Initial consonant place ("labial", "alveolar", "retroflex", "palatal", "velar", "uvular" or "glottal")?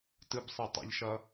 alveolar